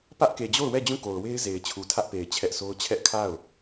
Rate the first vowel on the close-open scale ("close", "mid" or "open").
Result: open